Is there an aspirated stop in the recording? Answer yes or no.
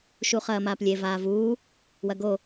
no